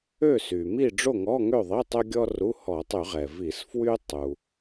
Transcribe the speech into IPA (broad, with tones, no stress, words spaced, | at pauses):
ø˥˨sy˩mi˥˨ ɖ͡ʐo˥˨ŋɔ˧˥˧ŋø˥˨ðˤi˧˥˧ tˤø˥ɡʲɔ˥ru˧˥˧ hɔ˧˩˧tˤy˧˩˧ʁɛ˩ vi˧˩˧sfwy˥ tˤu˩